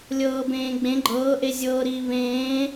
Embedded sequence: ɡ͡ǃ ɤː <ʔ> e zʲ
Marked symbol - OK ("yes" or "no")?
yes